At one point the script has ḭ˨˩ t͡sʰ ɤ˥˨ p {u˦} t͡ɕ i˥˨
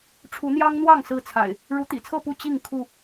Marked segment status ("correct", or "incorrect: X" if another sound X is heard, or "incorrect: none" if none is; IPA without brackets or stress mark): incorrect: u˥˨